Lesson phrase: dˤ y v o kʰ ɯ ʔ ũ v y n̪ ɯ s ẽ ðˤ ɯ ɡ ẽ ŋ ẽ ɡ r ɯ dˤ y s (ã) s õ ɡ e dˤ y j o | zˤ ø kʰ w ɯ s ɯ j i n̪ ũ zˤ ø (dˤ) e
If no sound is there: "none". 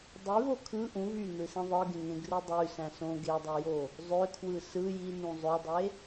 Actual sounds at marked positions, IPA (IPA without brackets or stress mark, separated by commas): æ̃, dˤ